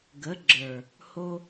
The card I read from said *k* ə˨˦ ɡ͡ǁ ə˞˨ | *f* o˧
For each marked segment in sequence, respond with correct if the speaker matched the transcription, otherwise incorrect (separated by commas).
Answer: incorrect, incorrect